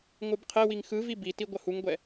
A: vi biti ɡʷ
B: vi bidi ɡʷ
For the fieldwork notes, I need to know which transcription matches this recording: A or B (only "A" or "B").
A